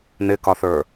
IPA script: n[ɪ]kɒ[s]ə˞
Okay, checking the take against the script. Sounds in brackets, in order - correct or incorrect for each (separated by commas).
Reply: correct, incorrect